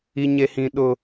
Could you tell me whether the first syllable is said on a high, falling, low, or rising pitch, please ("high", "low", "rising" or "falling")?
high